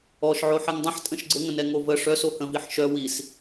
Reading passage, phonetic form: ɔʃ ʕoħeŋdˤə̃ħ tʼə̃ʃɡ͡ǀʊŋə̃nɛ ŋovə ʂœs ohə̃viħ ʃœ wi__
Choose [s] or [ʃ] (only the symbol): s